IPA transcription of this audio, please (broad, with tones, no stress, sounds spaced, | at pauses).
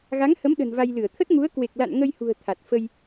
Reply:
ɣ a˨˦ ŋ h ə˨˦ m ɗ ə̤˨˩ n v a˧ j l ɨ˧˩ ə̯ t̪ʰ ə˦˥ t̚ ŋ u˨˦ ə̯ k w e˨˩ k̚ l a̰˧˨ n ŋ ə˧ j h ṳ˨˩ ə̯ t̪ʰ a˨˩ t̚ f ə˧ j